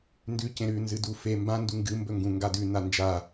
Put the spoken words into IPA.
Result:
n d ʉ c ẽ ɾ ʉ n z ɨ d u f e m b ã n d u ŋ ɡ ɨ m b ɵ ŋ ɡ ũ ŋ ɡ a d ʉ n a n d͡ʒ a

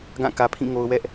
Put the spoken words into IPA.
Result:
ɡ ã˦˨ k ä˨ pʰ ĩ˦˨ ŋ o˨ ʊ̯ w ɛ˦ ʔ

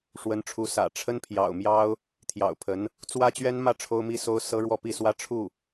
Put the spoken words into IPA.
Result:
ʂ w ə˧˥ n ʈ͡ʂʰ u˧˥ s ä̰˨˩ ʈ͡ʂʰ ə˥ n pʰ j ɑ̰˨˩ ʊ̯ m j ɑ˥ ʊ̯ | t̪ʰ j ɑ̰˨˩ ʊ̯ pʰ ə˧˥ n | t͡s w ä˥ t͡ɕ ɥ ɛ˥ n m ä˥˩ ʈ͡ʂʰ o˥ ʊ̯ m i˥ s o˥ ʊ̯ s ɤ˥ ɻ w ɔ˥˧ p i˥˩ s w ä˥ ʈ͡ʂʰ u˥˩

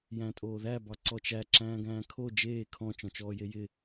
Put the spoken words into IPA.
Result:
j æ̃ tʼ oː ð æ b ɑ ǀ ɔ t͡ʃ æ ǁ æ̃ː ɡ æ̃ː kʰ o d͡ʒ eː kʰ ɔ̃ t͡ʃ ɔ̃ t͡ʃ ɔː j e j ɪ

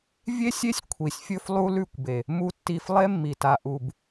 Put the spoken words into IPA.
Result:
vʲ e˦ sʲ e˦ sʲ kʷʰ i˨ sʲ fʲ ɵ˦ f lˠ u˦ l ʉ˦˨ kʷ b e˨ | m u˨ tː i˨ f lˠ e˦ mː i˨ t a˨ ʔ u˨ b

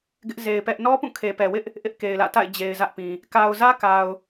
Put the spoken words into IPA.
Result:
ɡ ɪ˦ ʔ z e˨ ɪ̯ p ɛ˦ ʔ n ɔ˦ p ũ˦˨ kʰ e˨ p ɛ˨ w ɪ˦ ʔ | ʔ ɪ˦ ʔ k e˨ ɪ̯ l ä̰˦˨ t a̰˦˨ ɪ̯ d͡ʑ e˨ ɪ̯ z ä˦ ʔ p ĩ˨ | k a˨ ʊ̯ z ä˦ k a˨ ʊ̯

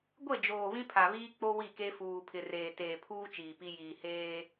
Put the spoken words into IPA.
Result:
ɡʷ e˦˨ d͡ʒ oː˨ β ĩ˦ pʰ a˨ β iː˦ k͡p o˦ w i˦˨ k e˦ f uː˨ pʰ ɪ˨ r eː˨ t eː˨ pʰ uː˦ t͡ʃ iː˨ p i˦ j iː˨ h eː˦

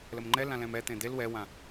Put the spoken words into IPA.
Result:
l ə m ŋ͡ǃ ɛ l ã l ɛ̃ m ɛ t̪ ẽ d̪ e l w ɛ w ã

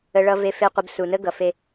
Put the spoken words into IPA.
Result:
ə˨ ɭ ʌ˨ v e˨ f e˨ qʷ ə˨ b s u˨ n ə˦ ɡ ʌ˨ f e˦

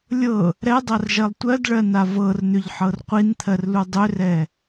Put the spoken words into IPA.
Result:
lʲ ɤ | ɾ ɛ dˤ a r ʒ ɜ lˠ tʷ ɜ d ɭ ɜ n a v ɤ r n̪ ʏ ʎ ħ ɤ r qʷ i n t̪ʰ ɜ r l u dˤ ʏ r ɛ

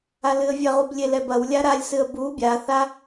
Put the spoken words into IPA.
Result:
a l ɨ ə̯ vʲ ɐ ʁ u b lʲ e l ɛ b ɐ w lʲ a ɾ a lʲ s ɨ ə̯ b u bʲ a θ a

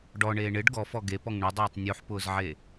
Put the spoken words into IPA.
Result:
ɖ ɔ ɳ eː ɳ ɪ ɖ ɡ ɔ f ɔ ɡ e p ɔ ŋ ɳ ʊ dˤ eː tˤ nʲ u ħ p ʊː z ʕ e

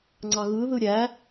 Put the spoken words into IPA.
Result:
ŋ͡ǀ ɑ ɣ ɯ ð ɯ ɾʲ æ

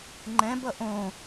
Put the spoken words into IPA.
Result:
ŋ͡ǃ ɛ̃ b ʌ ʔ õ

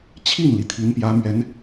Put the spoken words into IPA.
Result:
t͡ɕʰ i˥˩ n l i˩ t̪ʰ i˧˥ n p j ä˧˥ m ɥ ɛ˧˥ n

